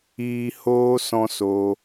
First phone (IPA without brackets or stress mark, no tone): iː